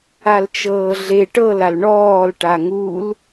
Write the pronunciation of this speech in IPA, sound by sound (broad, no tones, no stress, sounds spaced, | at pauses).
a l t͡ʃ ɤː ɮ e ʈ ɤ l a l ɳ ɔː l ʈ a ŋ u l